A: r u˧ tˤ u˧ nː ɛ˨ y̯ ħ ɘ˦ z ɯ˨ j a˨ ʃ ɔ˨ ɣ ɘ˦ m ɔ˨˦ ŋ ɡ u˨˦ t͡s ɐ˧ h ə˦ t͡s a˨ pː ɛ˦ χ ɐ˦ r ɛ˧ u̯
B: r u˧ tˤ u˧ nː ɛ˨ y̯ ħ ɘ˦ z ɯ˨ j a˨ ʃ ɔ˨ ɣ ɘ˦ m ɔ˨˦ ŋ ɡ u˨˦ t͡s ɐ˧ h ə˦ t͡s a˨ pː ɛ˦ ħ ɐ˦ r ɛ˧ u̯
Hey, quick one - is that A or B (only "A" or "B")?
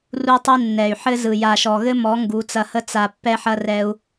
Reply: B